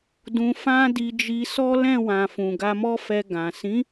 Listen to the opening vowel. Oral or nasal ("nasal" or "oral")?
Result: nasal